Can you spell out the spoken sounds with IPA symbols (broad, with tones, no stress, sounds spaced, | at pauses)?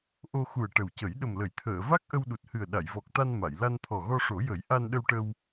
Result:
ʔ o˧ x u˨˩ ə̯ ʈ ə˨˩ w c ə˨˩˦ j ɗ ə˨˩ m l ə˨˩˨ j t̪ʰ əː˨˩˨ v a˦˥ k̚ ʔ ə˧ w ɗ u˨˩ t̚ h ɨ˨˩ ə̯ ɗ a˨˩˨ j v ɔ˨˩ k̚ t̪ a˧ n m a˨˩˨ j l a˧ n t̪ʰ ɔ˨˩ ɣ ɔ˧ ʂ o˨˩˦ j ə˨˩˦ j ʔ a˧ n ɗ ə˧ w ʈ ə˧ w